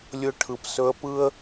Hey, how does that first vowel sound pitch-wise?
high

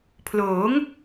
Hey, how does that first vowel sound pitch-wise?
rising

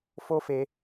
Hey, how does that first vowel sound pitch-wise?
high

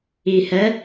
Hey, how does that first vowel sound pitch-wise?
low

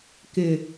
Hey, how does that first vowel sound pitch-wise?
low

